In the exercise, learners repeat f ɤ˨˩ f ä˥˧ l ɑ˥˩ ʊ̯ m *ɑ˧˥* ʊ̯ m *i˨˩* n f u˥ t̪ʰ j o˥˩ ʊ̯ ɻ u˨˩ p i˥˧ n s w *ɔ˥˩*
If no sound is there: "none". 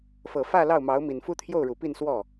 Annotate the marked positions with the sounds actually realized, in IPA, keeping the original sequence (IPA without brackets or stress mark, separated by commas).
ɑ˧˥, i˨˩, ɔ˥˩